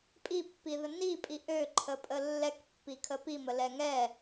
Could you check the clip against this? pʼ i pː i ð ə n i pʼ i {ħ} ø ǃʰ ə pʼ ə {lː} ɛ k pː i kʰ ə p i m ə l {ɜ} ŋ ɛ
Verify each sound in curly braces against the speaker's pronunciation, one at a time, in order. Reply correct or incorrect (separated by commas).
incorrect, correct, incorrect